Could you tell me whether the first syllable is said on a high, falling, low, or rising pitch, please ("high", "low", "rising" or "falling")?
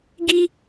high